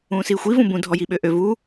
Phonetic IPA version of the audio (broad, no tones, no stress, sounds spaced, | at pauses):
ũː s iː xʷ i v ũ b ũ dʱ ɔ j i ɓ ø ʔ ø v u